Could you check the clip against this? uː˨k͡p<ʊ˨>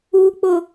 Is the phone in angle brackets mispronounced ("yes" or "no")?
no